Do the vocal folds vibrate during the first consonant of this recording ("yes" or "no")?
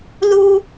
yes